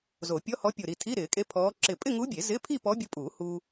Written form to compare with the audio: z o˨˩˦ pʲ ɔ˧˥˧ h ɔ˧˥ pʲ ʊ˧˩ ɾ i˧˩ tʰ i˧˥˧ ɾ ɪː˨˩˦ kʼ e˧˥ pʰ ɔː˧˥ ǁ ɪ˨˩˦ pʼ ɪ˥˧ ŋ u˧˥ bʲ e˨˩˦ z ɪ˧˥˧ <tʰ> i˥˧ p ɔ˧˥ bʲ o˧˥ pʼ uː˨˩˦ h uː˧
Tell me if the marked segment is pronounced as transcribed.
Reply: no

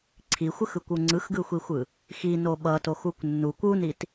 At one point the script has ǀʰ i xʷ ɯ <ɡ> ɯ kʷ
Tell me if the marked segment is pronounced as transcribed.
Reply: no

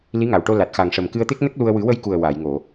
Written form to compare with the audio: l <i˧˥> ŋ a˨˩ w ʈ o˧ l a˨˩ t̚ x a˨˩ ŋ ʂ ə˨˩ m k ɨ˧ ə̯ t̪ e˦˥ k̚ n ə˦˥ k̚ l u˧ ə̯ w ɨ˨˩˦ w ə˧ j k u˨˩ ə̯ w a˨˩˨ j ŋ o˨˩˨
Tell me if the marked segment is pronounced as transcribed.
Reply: yes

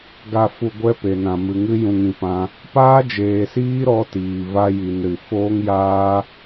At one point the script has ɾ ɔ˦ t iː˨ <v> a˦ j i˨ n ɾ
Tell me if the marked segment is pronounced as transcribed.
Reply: yes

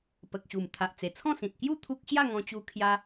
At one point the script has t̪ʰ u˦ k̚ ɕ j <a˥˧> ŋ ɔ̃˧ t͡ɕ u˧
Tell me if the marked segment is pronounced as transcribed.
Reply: yes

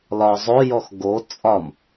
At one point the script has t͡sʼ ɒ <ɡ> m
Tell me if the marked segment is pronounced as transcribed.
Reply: no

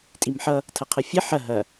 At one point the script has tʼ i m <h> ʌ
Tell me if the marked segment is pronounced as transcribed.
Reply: no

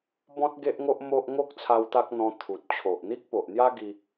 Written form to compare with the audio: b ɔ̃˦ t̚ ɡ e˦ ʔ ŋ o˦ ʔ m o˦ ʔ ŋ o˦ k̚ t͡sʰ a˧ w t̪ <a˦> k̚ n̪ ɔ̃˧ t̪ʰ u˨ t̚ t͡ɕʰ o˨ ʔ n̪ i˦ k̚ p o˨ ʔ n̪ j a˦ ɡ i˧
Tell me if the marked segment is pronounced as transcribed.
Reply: yes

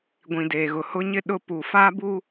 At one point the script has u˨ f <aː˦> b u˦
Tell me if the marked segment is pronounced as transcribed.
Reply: yes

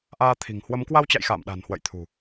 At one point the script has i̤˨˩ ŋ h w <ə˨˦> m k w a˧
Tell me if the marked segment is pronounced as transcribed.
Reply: yes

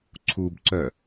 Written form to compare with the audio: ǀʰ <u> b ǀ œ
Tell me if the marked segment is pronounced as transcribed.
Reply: yes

